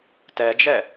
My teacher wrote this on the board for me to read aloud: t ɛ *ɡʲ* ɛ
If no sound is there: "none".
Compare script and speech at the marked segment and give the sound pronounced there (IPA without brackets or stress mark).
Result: d͡ʒ